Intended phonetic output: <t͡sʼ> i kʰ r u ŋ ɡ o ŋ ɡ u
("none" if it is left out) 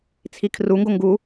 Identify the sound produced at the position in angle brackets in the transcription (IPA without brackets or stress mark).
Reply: t͡sʰ